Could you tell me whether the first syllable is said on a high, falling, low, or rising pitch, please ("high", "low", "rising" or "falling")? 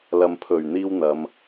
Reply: low